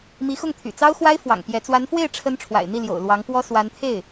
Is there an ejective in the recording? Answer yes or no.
no